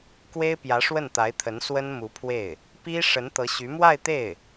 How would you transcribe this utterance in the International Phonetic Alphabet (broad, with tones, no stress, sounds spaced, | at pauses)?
k w e˥ ɪ̯ p j ä˧˥ ʂ w ə˥˩ n t̪ a˧˥ ɪ̯ t̪ʰ ə˧˥ n s w ə˥ n m u˧˥ pʰ w e˥˩ ɪ̯ | p i˥ ʂ ə˧˥ n t̪ ɤ˧˥ ɕ y˧˥ m w a˥˧ ɪ̯ t̪ e˥˩ ɪ̯